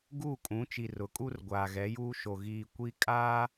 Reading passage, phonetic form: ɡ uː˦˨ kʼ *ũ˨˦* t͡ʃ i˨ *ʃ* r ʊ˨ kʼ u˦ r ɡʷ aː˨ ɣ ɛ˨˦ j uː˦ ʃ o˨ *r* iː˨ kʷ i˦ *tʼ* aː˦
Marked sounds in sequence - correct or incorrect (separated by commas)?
correct, incorrect, incorrect, incorrect